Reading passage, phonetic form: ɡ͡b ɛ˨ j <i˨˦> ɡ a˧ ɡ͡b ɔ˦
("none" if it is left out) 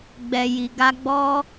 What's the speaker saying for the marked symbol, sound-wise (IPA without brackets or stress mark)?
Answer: i˨